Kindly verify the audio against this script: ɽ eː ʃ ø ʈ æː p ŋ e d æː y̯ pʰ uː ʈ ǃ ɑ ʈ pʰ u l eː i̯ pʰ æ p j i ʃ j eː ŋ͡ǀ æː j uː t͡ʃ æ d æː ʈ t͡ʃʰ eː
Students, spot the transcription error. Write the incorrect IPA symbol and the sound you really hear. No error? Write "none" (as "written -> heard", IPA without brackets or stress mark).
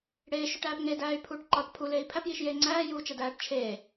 none